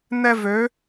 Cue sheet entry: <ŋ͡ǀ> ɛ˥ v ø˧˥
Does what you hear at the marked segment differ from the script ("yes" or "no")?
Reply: yes